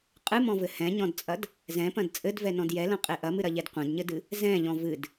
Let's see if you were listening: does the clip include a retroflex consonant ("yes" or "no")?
no